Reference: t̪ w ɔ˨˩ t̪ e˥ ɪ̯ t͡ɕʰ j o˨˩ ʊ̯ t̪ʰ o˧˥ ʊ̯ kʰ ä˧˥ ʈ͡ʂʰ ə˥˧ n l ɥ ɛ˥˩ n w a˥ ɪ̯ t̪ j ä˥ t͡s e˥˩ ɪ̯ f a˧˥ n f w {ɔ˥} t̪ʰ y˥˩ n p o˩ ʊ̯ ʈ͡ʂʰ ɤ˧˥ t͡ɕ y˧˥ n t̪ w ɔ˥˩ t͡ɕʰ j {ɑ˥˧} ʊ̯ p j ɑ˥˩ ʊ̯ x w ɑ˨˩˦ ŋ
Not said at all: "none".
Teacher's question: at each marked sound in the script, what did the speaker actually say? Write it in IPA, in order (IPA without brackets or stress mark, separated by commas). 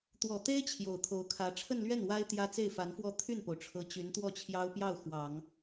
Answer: ɔ˥˧, ɑ˥